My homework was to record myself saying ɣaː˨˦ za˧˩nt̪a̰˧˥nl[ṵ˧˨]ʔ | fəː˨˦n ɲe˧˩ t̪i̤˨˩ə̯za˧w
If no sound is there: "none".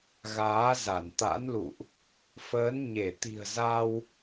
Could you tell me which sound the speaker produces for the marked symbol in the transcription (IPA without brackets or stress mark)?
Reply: ṵ˧˨